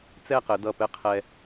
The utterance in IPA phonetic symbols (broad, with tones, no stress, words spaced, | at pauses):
t͡sɛ˥˧qɘ˩˧dʌ˧˩pɘ˥˧ qʰɛ˧